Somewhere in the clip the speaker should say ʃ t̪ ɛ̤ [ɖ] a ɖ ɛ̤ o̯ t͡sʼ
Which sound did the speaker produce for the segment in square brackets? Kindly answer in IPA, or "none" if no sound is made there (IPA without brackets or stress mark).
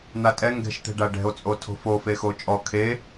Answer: ɖ